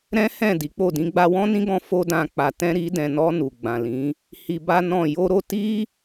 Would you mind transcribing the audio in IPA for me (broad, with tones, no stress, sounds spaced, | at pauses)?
ɾ ɛ̃˦ h ɛ̃˦˨ d i˨˦ k͡p o˦˨ d ĩ˧ ɡ͡b a˧ w ɔ̃˦ n ĩ˦ ɡ ɔ̃˧ f o˦ d ã˧ k͡p a˨ t ɛ̃˧ ɾ i˧ d ɛ̃˨ n ɔ˧ n u˨ ɡ͡b ã˨ l ĩ˨˦ | h i˧ b a˦ n ɔ̃˦˨ j o˧ ɾ o˧ t i˦